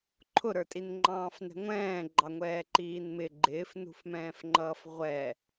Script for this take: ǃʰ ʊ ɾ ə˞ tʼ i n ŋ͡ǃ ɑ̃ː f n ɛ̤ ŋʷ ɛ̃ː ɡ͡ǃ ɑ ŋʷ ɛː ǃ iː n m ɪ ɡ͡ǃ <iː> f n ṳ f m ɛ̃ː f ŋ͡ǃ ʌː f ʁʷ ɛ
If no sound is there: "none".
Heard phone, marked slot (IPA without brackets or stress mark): ɪː